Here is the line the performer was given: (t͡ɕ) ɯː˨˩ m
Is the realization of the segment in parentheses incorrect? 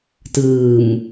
yes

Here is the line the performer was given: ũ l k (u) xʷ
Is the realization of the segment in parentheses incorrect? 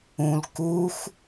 no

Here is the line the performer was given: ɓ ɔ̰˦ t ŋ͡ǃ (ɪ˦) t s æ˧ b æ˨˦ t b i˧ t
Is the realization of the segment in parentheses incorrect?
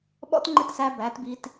no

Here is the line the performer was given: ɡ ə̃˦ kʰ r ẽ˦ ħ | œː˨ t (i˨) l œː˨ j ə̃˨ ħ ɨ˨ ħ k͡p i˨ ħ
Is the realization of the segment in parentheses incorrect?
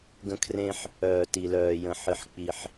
no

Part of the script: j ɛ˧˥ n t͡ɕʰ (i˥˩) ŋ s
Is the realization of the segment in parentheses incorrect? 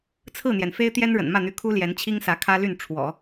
yes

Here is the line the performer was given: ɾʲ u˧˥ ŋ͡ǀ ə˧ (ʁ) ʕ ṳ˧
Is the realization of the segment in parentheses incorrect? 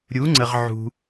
no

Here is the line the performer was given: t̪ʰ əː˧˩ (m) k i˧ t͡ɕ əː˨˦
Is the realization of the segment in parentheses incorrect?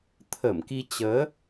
no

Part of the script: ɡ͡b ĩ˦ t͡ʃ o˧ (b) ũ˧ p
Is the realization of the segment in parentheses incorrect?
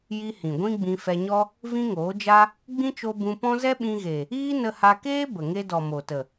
no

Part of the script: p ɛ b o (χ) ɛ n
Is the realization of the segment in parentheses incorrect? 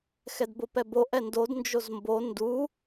yes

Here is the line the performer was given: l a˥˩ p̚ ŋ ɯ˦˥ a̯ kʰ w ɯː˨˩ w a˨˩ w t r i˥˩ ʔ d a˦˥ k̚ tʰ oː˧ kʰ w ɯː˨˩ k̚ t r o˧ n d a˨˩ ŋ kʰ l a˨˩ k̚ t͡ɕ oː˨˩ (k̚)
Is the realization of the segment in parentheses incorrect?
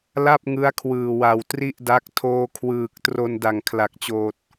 yes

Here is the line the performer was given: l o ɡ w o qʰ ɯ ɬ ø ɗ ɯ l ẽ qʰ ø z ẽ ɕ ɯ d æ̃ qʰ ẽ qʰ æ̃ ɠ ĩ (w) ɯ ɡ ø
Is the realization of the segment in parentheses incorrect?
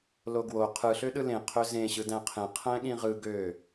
yes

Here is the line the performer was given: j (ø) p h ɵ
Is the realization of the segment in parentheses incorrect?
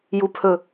yes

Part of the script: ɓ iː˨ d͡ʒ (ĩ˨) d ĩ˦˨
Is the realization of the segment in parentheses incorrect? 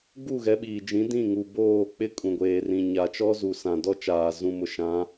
yes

